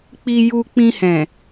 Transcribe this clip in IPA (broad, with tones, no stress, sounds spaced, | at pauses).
k͡p i˧ j u˧ k͡p ĩ˧ h ɛ̃˨